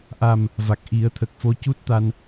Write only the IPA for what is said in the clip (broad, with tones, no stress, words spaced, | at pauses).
ʔa˨˩m | va˨˩k̚ʔi˨˩˦ə̯ t̪ʰə˨˩k̚fo˧˥cu˦˥t̚t̪a˧n